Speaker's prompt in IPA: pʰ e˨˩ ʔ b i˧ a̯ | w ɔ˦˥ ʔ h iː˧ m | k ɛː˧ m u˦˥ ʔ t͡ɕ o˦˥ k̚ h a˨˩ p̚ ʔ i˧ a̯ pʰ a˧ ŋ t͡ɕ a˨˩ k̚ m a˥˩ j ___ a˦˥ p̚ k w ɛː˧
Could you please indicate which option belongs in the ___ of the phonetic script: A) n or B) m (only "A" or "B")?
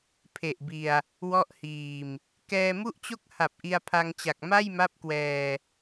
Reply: B